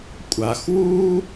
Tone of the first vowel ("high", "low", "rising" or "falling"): low